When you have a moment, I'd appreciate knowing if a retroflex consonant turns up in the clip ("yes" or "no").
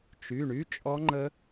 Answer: yes